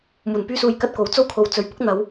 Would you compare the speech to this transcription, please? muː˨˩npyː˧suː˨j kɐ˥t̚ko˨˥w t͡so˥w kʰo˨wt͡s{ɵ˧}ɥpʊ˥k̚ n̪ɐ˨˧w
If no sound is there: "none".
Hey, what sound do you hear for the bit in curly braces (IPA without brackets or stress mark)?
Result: ɵ˨